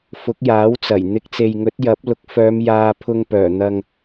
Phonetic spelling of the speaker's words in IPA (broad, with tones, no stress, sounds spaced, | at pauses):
f ʊ˨˥ k̚ j aː˨˥ w t͡s ɐ˨˩ j n̪ ɪ˨˥ k̚ t͡s e˨ j ŋ ɵ˨˥ t̚ j ɐ˨˥ p̚ l ʊ˨˥ k̚ f œː˨˧ m j aː˨ pʰ ʊ˧ ŋ p œː˨˩ n̪ ɐ˧ ŋ